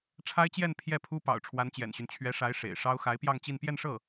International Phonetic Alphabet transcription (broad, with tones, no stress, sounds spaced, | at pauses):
ʈ͡ʂʰ a˥ ɪ̯ t͡ɕ j ɛ˥˧ n pʰ j ɛ˥˩ pʰ u˥ p ɑ̰˨˩ ʊ̯ ʈ͡ʂʰ w a˧˥ n t͡ɕ j ɛ̰˨˩ n ɕ y˦ n t͡ɕʰ ɥ ɛ˧˥ ʂ a˧˥ ɪ̯ ʂ ḛ˨˩ ɪ̯ ʂ ɑ˥ ʊ̯ x a˧˥ ɪ̯ p j ɑ˥˧ ŋ t͡ɕ i˥˧ n p j ɛ˥˧ n ʂ ɤ˥˩